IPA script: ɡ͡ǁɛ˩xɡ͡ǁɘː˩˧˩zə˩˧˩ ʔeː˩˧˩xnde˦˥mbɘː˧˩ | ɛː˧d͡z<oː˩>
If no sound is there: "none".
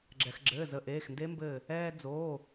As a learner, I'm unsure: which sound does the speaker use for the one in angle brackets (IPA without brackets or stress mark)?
oː˩˧˩